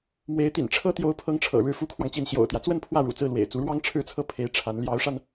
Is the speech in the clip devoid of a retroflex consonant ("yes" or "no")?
no